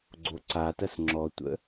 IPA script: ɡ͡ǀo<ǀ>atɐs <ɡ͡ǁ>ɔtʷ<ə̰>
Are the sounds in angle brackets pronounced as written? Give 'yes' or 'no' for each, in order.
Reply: yes, no, yes

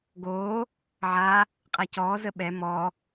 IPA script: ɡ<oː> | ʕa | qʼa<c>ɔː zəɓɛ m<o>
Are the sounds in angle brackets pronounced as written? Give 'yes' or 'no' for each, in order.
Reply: yes, yes, no

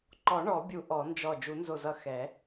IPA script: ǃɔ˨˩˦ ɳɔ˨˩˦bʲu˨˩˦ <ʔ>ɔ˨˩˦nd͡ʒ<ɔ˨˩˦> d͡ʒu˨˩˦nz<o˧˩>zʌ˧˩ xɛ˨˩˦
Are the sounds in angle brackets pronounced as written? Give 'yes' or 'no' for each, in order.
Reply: yes, no, yes

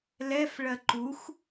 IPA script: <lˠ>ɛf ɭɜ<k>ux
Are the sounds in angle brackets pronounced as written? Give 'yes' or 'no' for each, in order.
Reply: no, no

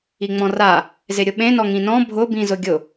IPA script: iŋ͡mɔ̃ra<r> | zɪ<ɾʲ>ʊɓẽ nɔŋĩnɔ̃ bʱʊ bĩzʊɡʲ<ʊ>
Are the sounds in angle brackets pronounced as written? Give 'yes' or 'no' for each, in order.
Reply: no, yes, yes

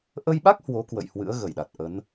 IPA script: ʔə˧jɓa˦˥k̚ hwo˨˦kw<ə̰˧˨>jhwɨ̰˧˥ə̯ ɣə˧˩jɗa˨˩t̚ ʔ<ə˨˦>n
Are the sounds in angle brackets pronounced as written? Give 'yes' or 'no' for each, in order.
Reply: yes, yes

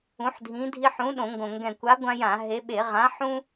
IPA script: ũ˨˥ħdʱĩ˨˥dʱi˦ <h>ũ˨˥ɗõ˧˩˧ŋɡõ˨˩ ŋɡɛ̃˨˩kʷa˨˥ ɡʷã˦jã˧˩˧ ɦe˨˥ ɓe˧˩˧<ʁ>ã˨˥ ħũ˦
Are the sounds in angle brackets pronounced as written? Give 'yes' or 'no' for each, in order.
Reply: no, yes

